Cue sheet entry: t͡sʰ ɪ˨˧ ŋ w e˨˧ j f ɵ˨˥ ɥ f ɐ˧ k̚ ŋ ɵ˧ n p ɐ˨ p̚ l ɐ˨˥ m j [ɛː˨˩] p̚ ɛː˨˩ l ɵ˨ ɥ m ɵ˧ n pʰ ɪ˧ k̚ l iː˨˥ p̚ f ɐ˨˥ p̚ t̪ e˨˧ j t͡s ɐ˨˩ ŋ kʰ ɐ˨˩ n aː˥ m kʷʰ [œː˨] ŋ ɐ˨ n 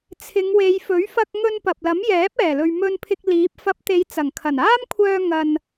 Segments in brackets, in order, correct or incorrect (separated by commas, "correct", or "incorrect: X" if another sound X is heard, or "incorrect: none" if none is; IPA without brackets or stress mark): incorrect: ɛː˨˥, incorrect: œː˧